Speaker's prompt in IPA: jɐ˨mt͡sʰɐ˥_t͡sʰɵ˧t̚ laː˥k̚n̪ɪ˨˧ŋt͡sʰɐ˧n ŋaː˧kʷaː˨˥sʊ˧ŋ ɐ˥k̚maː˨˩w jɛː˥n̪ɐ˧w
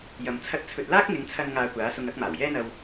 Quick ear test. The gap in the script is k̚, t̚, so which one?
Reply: t̚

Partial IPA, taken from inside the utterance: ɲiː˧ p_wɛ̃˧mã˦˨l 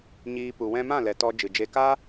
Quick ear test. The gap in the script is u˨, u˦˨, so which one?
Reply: u˨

